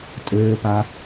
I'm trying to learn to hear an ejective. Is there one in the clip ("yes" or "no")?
yes